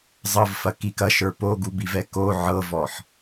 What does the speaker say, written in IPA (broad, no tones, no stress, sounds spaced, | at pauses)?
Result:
zˤ ɤ v f ɐ k i k ɐ ʃ ə˞ p o ɡ u b i v ɛ k o ʕ ɤ v ɔ ħ